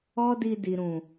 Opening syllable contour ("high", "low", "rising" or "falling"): high